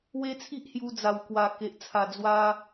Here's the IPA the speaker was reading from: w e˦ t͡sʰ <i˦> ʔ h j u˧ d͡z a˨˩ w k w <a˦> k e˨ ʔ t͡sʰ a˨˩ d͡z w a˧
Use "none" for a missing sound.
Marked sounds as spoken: i˦, a˨˩

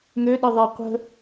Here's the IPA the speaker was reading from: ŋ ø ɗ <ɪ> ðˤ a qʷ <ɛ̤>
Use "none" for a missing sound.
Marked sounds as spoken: ɪ, ə̤

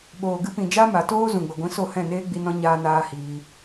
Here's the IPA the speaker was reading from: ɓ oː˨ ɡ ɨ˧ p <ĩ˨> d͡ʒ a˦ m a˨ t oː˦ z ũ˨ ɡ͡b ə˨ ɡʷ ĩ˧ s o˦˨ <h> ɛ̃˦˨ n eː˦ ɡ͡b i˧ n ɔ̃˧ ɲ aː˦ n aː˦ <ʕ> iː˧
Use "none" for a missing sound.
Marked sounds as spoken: ĩ˨, h, h

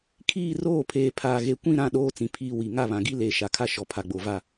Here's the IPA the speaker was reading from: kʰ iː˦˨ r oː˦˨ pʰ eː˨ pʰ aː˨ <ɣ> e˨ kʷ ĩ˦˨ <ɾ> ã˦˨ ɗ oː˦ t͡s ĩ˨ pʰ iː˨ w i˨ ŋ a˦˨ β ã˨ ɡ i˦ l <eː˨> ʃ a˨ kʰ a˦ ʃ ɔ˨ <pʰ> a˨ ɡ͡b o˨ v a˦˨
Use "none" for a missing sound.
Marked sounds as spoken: ɣ, ɾ, eː˨, pʰ

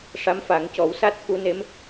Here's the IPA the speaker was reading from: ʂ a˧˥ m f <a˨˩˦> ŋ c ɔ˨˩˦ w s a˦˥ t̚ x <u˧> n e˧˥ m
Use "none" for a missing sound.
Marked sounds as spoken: a˨˩˦, u˧

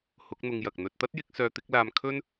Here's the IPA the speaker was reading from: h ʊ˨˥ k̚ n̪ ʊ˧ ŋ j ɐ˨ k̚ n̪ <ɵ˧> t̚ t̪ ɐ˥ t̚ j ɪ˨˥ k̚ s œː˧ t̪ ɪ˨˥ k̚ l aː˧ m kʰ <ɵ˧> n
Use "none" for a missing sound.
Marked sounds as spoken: ɵ˧, ɵ˥

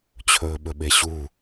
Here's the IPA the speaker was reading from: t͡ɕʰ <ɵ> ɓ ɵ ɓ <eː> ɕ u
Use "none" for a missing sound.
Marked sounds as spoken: ɵː, e

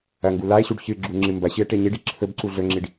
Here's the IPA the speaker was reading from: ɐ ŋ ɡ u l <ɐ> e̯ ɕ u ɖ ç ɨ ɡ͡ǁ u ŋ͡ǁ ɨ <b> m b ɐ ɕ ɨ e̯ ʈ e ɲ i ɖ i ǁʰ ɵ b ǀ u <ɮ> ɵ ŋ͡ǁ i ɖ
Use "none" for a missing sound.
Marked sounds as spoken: a, none, ɮ

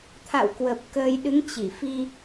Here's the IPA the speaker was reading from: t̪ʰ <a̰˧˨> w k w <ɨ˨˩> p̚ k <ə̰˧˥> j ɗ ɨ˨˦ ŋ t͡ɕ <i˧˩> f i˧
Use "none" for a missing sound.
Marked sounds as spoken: a̰˧˨, ə˨˩, ə˧, i˧˩

